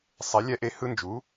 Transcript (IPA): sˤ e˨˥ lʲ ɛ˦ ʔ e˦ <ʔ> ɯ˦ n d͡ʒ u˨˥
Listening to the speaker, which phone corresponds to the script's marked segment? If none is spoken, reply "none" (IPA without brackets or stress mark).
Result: h